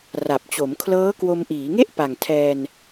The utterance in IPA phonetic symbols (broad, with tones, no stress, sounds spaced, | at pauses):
r a˨˩ p̚ t͡ɕ o˩˦ m kʰ l ɤː˦˥ k w o˧ m ʔ iː˩˦ ŋ e˥˩ ʔ p a˨˩ ŋ tʰ ɛː˧ n